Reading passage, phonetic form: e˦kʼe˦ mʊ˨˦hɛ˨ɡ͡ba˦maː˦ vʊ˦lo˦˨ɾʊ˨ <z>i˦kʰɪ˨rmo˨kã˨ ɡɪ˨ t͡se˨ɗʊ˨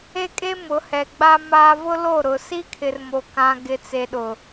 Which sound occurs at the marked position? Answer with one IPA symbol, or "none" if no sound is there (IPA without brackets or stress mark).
s